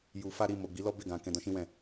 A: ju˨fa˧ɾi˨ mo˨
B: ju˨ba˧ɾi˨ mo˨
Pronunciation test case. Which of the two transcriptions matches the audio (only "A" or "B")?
A